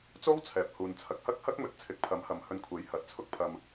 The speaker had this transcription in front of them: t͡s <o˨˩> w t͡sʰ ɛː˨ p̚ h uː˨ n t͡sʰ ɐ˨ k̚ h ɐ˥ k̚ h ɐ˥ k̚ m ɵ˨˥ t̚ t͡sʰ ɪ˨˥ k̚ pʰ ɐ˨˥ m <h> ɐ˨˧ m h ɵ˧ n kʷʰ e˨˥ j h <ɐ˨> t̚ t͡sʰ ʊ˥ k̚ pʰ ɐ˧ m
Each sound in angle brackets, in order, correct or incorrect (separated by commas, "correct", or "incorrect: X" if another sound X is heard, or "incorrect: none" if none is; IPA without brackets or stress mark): incorrect: o˥, correct, incorrect: ɐ˨˥